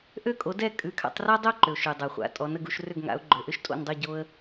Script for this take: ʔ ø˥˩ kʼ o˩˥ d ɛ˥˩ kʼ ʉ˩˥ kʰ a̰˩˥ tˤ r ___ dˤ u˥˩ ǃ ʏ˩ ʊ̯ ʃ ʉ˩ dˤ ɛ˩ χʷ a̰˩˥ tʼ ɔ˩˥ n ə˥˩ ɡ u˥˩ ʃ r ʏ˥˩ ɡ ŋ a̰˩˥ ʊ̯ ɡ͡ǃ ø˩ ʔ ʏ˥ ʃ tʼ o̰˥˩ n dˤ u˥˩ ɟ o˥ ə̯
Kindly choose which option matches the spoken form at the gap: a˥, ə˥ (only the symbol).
a˥